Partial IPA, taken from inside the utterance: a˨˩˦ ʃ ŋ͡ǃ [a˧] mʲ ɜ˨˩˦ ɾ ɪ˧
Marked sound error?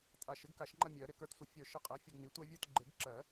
yes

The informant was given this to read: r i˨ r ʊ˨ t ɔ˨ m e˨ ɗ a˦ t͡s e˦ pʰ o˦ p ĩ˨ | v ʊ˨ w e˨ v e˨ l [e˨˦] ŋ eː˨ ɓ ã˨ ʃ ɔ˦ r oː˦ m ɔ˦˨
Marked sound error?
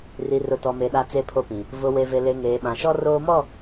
yes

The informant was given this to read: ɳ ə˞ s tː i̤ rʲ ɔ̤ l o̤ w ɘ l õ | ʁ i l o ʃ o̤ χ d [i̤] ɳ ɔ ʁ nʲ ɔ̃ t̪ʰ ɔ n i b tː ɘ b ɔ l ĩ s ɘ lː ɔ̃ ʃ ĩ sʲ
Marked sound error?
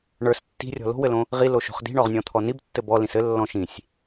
no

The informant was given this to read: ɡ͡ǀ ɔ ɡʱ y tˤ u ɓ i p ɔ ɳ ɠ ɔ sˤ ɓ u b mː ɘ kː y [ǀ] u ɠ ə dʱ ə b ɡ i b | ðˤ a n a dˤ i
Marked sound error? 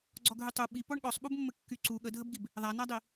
no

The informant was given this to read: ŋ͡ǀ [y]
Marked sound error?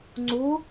yes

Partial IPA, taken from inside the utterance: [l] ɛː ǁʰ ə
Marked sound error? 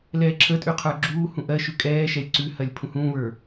no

